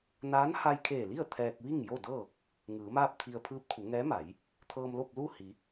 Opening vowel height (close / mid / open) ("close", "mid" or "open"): open